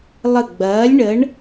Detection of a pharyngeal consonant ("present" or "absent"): absent